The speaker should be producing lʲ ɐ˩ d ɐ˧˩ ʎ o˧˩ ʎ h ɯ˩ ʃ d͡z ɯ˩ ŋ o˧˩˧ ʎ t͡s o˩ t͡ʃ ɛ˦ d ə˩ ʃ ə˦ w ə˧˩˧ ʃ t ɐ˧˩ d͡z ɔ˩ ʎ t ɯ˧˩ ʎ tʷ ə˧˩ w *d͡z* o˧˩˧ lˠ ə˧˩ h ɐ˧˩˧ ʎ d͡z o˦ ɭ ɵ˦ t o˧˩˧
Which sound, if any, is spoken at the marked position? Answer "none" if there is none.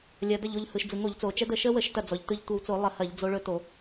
t͡s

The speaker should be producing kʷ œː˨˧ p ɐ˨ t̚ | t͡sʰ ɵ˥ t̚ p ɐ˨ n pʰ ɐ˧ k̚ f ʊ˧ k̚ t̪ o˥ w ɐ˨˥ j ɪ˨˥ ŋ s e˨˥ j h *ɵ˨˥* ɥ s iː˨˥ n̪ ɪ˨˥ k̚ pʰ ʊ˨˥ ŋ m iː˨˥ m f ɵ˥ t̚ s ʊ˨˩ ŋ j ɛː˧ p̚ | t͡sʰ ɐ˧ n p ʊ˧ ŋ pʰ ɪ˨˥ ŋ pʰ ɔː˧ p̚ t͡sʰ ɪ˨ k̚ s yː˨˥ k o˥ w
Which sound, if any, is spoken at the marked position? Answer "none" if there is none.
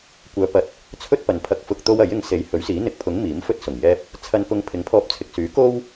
ɵ˨˥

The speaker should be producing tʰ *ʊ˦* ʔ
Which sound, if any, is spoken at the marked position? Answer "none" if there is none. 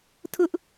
ʊ˦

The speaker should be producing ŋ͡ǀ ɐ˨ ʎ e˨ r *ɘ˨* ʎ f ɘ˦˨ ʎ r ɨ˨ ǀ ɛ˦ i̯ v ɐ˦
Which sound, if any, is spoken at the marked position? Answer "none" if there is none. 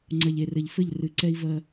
ɘ˨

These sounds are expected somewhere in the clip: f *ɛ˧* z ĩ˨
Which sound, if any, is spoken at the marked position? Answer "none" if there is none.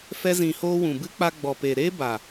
ɛ˧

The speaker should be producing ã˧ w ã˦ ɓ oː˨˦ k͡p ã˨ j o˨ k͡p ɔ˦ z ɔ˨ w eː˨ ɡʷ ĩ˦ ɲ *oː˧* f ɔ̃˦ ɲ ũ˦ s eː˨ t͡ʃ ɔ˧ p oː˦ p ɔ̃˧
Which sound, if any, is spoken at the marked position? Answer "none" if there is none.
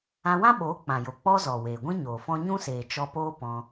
oː˨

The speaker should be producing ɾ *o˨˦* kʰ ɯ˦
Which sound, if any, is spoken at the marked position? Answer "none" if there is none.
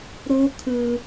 o˦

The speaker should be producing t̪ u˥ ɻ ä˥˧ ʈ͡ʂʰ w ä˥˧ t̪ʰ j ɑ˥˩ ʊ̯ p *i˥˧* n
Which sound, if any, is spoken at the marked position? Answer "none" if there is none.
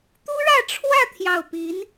i˧˥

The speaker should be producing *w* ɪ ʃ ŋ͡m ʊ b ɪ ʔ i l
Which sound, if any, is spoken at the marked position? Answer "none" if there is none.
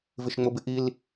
v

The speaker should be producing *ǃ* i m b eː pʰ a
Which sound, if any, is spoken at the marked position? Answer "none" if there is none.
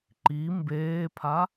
ǃ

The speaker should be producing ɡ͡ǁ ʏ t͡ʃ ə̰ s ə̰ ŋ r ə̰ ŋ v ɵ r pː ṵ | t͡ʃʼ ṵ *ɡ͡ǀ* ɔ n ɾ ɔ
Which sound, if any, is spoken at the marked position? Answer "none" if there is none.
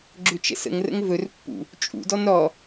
d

